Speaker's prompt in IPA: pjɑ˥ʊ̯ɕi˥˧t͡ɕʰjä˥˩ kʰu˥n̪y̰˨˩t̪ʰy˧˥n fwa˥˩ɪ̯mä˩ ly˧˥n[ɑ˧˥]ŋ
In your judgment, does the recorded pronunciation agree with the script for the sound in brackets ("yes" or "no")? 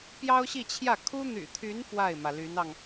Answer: no